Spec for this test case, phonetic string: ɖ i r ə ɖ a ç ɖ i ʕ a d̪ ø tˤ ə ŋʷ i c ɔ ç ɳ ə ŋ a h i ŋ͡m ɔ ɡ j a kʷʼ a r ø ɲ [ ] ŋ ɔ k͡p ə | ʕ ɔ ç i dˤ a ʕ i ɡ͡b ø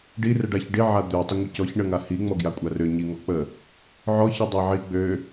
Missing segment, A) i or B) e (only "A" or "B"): A